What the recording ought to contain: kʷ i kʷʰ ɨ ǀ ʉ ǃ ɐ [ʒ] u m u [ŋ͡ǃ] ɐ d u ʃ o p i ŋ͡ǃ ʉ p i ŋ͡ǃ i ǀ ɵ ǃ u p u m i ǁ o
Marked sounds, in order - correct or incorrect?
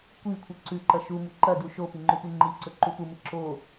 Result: incorrect: ʃ, incorrect: ǃ

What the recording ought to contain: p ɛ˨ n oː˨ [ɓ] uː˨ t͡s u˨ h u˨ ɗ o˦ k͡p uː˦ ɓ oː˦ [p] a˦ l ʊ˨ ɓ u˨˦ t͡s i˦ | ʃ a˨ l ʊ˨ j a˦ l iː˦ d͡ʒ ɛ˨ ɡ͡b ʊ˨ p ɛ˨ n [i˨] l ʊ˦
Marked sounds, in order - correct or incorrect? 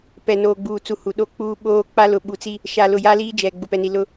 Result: incorrect: ɡ͡b, incorrect: k͡p, correct

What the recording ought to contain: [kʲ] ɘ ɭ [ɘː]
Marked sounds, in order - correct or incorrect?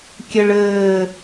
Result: correct, correct

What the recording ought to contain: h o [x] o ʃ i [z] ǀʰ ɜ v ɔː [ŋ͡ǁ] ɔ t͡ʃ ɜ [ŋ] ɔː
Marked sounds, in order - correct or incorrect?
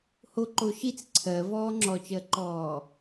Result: incorrect: ǃ, incorrect: t͡s, correct, incorrect: ǃ

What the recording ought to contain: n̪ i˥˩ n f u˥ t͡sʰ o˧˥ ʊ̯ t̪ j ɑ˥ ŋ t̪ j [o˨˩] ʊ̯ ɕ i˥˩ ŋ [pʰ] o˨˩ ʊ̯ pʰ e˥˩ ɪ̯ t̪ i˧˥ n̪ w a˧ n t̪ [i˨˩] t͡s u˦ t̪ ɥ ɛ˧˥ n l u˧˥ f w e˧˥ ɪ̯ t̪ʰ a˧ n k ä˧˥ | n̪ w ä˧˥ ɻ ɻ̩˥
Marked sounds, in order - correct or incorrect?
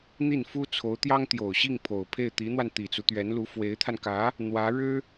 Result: correct, correct, correct

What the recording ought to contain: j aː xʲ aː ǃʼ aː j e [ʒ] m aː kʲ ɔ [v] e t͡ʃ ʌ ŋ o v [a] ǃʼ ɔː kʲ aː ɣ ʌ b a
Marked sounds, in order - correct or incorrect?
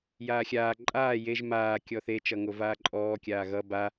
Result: correct, incorrect: θ, incorrect: aː

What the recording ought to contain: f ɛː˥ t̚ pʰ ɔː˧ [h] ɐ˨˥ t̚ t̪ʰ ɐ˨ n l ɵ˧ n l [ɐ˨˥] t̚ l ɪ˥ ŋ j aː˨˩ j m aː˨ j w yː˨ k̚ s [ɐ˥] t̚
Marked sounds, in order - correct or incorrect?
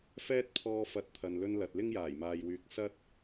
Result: incorrect: f, incorrect: ɐ˨, correct

